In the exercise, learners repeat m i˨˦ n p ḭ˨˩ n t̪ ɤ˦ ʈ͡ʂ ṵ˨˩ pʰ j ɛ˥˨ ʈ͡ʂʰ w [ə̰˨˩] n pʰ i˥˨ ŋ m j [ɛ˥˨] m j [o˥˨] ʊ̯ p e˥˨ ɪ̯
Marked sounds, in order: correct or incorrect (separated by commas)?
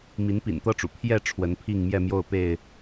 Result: incorrect, correct, correct